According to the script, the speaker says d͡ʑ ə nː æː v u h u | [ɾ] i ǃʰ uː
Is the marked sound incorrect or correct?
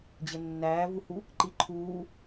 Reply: incorrect: ǃ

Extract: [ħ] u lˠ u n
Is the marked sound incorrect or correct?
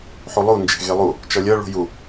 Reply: correct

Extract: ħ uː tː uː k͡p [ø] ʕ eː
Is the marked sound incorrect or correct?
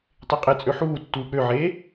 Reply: correct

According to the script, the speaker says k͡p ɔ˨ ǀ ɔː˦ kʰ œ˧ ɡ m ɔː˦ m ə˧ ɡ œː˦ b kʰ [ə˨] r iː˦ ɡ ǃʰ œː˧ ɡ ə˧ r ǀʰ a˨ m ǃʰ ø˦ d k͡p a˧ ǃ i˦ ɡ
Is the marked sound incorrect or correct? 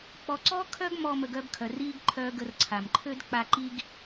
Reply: incorrect: œ˨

